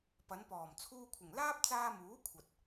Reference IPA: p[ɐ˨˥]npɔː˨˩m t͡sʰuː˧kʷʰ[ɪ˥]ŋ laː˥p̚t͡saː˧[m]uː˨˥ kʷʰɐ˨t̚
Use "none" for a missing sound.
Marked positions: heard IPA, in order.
ɐ˨˧, ɪ˨˩, m

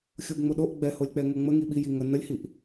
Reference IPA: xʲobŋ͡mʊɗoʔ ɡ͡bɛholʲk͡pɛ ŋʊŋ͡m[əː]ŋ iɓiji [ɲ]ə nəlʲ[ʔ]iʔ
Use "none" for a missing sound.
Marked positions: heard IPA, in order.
ə, ŋ, h

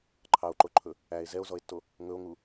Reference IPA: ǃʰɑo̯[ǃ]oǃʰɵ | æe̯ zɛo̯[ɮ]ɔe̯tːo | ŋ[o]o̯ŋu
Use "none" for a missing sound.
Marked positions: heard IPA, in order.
ǃ, z, ɵ

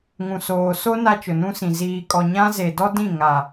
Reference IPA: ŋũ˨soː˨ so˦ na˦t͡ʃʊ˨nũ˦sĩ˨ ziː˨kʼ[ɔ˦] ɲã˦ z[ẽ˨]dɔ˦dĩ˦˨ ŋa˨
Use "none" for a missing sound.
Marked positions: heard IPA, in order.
ɔ˨, e˨

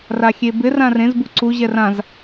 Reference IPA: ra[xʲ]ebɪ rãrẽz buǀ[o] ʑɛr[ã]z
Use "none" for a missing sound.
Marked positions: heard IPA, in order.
xʲ, u, ã

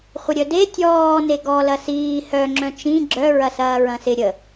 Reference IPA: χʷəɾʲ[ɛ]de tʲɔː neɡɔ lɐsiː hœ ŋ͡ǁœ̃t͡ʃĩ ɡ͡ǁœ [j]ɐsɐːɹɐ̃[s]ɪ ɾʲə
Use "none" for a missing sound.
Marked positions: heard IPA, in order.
œ, ɹ, s

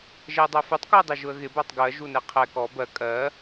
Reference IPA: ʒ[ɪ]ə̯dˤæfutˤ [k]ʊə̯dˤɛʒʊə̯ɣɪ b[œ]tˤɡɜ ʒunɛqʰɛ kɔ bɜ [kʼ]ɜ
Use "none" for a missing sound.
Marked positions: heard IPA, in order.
ɛ, k, æ, kʼ

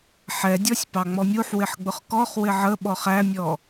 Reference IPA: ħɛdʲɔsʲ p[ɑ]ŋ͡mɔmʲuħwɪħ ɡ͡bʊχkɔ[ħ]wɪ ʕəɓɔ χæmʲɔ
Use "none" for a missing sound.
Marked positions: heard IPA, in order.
ɑ, χ

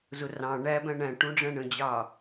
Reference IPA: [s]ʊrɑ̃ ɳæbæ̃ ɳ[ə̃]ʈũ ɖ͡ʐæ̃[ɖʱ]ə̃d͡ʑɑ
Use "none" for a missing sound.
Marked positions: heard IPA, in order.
z, æ̃, ɳ

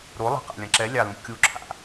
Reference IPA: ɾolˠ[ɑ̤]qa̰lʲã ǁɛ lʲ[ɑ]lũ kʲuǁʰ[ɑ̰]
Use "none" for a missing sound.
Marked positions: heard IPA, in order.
ɑ̤, ɑ, a̰

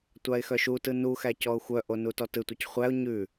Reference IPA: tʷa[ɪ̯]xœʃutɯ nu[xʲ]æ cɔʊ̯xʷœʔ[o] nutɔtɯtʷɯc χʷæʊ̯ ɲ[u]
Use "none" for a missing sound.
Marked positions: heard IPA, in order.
ɪ̯, x, o, ʉ

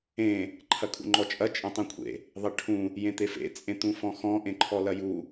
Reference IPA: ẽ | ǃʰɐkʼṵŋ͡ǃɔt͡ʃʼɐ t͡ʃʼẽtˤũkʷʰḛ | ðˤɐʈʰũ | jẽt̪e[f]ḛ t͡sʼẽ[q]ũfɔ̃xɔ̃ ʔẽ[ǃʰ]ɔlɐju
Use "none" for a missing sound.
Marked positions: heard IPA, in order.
f, t̪, ǃʰ

